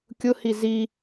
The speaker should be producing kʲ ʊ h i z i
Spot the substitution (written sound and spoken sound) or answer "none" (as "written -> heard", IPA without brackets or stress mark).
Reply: none